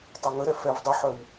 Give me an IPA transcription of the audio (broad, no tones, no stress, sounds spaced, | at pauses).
tˤ œ ŋ ə ɾ ɛ f ɛ v dˤ u ħ œ w